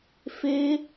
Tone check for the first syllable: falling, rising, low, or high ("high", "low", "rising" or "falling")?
high